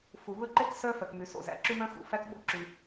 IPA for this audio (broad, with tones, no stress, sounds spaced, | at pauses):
f u˩ β ɵ˥ ǃ e˥ k s œ˥ f œ˩ k m y˩ s o̰˩ z æ̰˩ ǁ y˥ m œ̃˥ x ṵ˩ f æ˥ k ɓ o̰˥ ǁ y˩